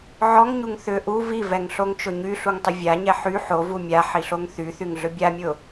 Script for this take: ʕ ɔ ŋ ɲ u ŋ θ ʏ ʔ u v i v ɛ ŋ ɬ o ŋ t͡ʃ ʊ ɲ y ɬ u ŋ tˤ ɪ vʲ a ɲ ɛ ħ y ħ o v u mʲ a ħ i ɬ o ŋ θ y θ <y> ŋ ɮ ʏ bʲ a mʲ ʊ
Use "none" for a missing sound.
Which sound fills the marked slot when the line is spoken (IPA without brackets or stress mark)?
y